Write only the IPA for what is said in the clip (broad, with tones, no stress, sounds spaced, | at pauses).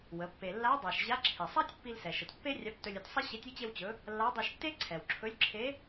w ə˩˧ pː e˩ lː a˧˥ dˤ a˩ ʃ ʑ a˧˥ ǁʰ i˩ sˤ a˥ tʲ pː i˧ l s ɛ˩ ʃ ə˩ t pː e˥ rʲ a˧˥ p t ɵ˧ lʲ ɵ˧ t sˤ ə˥ ɕ e˧˥ tʲ i˥ t͡ɕ e˧ w t͡ɕ ɵ˩˧ | lː a˧˥ dˤ i˧ ʃ tː e˥ ǀʰ ɛ˩ w ǁʰ ɵ˧˥ lʲ ǁʰ e˧˥